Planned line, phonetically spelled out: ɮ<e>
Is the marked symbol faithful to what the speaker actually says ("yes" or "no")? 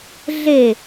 yes